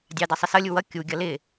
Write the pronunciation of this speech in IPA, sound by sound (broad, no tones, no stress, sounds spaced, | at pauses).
dʲ ɑ d ʌ sˤ ə s ʌ lʲ u w ʌ kʲ u ɡʲ ʌ l ɪ